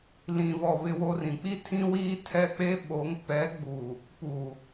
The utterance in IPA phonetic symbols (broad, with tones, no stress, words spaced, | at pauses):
lĩ˨vɔ˨ βɪ˦wo˦r ĩ˨k͡pi˦tʰĩ˦wiː˦ tʰɛ˦˨k͡pe˦ ɓo˨˦ŋ pɛ˨˦ɡ͡bu˨ | pu˨